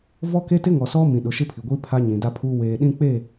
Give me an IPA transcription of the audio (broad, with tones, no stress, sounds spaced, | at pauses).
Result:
v ɔ˦ k e˦ t ɪ˦ ŋ ɔ˨ s ɔ˦ m ĩ˨ ɗ ʊ˨˦ ʃ ɪ˦ pʰ i˨ ɡʷ iː˦ pʰ a˦ ɲ ĩ˨ d a˦ pʰ uː˦ w eː˨ ɗ ĩ˦ k͡p e˦˨